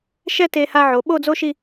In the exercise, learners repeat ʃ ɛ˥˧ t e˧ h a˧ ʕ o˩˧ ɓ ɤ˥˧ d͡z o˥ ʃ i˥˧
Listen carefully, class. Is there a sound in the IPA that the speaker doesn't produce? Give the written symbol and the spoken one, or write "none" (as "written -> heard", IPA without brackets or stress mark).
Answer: ɤ˥˧ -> o˥˧